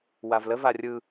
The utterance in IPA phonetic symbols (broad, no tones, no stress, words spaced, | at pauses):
wavlə varʲɯ